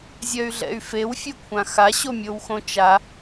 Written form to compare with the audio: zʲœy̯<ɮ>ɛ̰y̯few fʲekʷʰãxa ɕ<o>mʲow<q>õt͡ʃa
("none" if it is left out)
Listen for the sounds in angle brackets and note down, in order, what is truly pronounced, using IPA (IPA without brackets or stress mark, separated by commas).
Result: ɮ, o, x